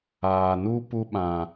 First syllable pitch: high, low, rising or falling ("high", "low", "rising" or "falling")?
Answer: low